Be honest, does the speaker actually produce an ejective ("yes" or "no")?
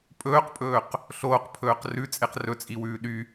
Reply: yes